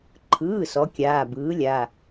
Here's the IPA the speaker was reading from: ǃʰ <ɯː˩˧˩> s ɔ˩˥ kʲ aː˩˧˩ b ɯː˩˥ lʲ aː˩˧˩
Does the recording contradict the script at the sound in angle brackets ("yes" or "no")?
no